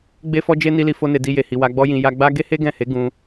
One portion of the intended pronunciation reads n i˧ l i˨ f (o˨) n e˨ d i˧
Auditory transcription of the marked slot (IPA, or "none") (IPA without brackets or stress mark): o˧